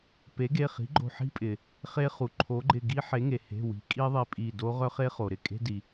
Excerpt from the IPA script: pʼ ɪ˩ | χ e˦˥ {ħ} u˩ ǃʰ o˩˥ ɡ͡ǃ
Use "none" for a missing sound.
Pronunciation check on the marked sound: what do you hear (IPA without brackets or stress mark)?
χ